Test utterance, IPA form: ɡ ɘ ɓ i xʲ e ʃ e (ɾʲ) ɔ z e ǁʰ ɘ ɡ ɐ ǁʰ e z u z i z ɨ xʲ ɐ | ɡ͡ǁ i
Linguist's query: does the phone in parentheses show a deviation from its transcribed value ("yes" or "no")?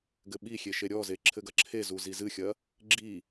no